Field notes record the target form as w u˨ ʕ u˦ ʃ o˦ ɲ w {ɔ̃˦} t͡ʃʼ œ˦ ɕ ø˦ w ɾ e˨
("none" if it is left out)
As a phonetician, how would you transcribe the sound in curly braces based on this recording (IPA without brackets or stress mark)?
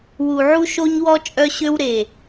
ɔ˦